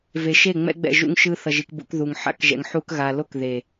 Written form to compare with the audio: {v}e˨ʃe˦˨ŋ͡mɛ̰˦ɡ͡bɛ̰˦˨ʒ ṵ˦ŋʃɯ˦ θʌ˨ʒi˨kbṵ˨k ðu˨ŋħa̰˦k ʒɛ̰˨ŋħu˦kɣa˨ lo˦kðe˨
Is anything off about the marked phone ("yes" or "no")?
no